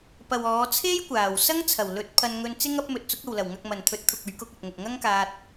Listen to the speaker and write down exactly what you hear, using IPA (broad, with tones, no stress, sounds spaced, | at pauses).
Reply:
p ɐ˨ w ɔː˨˧ t͡sʰ e˥ j kʷ aː˨˩ w s ɐ˥ ŋ t͡sʰ ɐ˨˩ w l ɵ˨˥ t̚ pʰ ɐ˧ n ŋ ɵ˧ n t͡s ɪ˥ ŋ ɐ˥ p̚ m ɵ˧ t̚ t͡s ʊ˨˥ k̚ ɐ˨ w l ɐ˨˩ w ŋ ɐ˨ k̚ m ɐ˨˩ n t̪ʰ ɵ˨˥ t̚ t̪ʰ ʊ˨ k̚ ɵ˨˧ ɥ k ʊ˧ k̚ ɐ˨ t̚ ŋ ʊ˨ k̚ ŋ ɐ˥ ŋ k aː˧ t̚